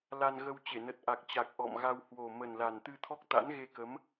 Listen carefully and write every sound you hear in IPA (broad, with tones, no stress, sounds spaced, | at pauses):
l a˧ n ɣ ə˧ w t͡ɕ e˧˩ n ə˨˩ t̚ ʔ a˨˩ k̚ t͡ɕ a˨˩ k̚ ʔ ɔ̰˧˨ m ɣ a˧ w h w o˨˩ m ə˨˩ n l a˨˩ n t̪ ɨ˧ t̪ʰ ɔ˦˥ k̚ t̪ a̰˧˥ n ɣ e˧ k ə˨˦ m